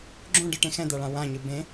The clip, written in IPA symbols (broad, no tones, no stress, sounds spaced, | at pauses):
ɡ͡ǁ õ ɖ ɯ ʈ ẽ x ɛ̃ d̪ a ɭ ã w ã ɲ ɯ b ẽ